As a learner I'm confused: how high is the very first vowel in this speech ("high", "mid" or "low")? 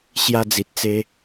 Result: low